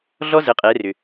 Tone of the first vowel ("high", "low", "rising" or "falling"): high